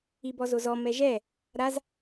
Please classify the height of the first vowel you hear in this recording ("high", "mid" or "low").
high